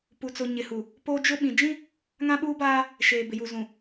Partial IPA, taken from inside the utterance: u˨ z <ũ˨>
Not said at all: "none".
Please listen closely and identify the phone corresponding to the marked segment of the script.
ũ˨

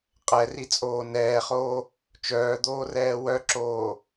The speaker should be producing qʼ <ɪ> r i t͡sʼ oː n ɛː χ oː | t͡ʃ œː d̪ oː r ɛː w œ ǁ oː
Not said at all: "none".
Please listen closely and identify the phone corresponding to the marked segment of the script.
ɛ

